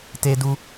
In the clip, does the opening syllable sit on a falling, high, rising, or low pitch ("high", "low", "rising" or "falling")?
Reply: high